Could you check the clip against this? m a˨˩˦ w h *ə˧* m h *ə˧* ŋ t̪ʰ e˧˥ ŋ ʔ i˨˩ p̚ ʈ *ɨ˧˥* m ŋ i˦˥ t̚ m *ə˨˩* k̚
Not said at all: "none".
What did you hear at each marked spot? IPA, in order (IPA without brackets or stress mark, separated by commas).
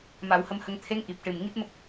ə˧, ə˧, ɨ˨˩, ə˦˥